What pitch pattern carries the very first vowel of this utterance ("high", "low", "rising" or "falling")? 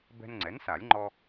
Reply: high